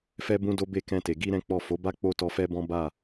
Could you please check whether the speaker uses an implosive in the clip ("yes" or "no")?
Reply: no